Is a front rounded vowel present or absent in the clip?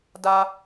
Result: absent